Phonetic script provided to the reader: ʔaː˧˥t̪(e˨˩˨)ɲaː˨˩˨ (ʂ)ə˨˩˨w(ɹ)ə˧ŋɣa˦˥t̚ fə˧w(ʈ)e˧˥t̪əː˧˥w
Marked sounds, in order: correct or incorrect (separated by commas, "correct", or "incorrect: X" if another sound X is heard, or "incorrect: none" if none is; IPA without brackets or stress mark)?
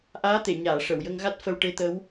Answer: correct, correct, incorrect: j, correct